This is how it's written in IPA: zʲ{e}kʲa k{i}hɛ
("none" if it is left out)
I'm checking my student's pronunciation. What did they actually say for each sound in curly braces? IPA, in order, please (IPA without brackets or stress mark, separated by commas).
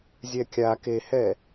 ɛ, e